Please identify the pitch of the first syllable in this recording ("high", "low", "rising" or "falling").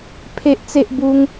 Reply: high